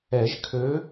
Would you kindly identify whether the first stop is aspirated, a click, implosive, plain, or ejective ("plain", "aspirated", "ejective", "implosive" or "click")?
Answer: aspirated